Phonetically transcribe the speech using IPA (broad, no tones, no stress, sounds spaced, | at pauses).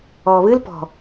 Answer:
ɔː β ɨ l p ɔ̤